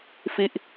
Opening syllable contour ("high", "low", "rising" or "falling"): falling